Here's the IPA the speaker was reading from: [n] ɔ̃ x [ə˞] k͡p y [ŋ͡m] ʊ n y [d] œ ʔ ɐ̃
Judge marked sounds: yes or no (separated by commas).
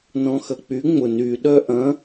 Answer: yes, no, yes, no